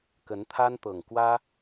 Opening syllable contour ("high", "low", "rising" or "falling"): rising